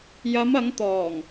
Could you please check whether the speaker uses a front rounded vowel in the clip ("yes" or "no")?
no